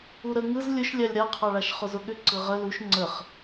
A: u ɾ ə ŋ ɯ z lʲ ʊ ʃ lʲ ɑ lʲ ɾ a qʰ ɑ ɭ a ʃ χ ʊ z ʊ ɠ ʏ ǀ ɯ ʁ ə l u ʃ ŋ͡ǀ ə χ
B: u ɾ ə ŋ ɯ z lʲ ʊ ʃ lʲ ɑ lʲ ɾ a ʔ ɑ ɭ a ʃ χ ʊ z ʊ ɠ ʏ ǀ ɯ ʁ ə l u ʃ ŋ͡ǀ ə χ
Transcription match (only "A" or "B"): A